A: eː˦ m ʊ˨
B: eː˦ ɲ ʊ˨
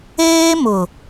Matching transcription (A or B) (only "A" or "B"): A